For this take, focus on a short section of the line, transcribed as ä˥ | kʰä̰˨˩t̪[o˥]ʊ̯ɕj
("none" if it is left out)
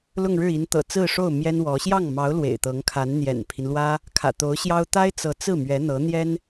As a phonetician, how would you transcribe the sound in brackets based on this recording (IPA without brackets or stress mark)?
o˧˥